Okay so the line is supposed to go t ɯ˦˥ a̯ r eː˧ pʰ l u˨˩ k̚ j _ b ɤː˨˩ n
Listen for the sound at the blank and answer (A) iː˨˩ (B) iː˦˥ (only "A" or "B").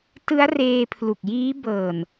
B